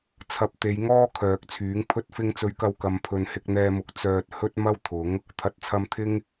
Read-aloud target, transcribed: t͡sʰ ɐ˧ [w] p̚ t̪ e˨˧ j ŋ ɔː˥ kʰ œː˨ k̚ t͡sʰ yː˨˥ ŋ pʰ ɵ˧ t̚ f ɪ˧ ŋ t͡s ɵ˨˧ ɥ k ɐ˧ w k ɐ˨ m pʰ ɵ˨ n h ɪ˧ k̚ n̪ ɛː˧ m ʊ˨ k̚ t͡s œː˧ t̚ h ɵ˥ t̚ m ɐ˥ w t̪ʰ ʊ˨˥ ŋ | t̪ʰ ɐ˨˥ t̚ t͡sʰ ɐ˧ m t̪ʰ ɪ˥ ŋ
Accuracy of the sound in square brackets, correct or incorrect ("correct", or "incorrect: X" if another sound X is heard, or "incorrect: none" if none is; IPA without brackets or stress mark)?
incorrect: none